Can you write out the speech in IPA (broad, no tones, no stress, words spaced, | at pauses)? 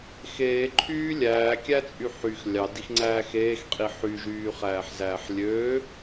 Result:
xeːǃʰyː lʲæːkʲæt͡sʼy ħyx lʲɑdixŋ͡ǀæː xeːxqʼi ħyʒyːχæːħzæːħ lʲøː